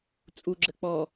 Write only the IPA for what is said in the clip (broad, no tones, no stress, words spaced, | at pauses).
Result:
t͡sʼuɡ͡ǁə k͡pɔ